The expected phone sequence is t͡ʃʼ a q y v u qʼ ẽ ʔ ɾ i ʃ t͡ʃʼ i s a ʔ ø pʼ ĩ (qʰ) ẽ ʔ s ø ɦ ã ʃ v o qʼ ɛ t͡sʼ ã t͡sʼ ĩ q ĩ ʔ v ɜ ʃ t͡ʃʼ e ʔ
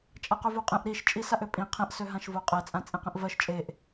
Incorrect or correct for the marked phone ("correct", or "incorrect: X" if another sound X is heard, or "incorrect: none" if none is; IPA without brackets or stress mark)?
correct